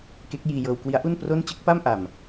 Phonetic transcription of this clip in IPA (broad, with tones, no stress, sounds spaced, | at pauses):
k e˦˥ k̚ j iː˧ j ɤː˧ w k w i˦˥ a̯ ʔ u˥˩ n p r o˥˩ n t͡ɕ ɯ˦˥ k̚ p a˥˩ m ʔ a˨˩ m